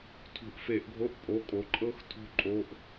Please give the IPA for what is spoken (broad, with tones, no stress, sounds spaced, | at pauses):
tʰ ṳ˧˩˧ ʔ f e˧˩˧ ʔ ɡʱ o˧˥˧ ʔ pʼ o˧˥˧ kʼ o˨˥ ǃʼ ɤ˦˥ x tʰ ṳ˦˥ ǃʼ o˧˥˧ ʔ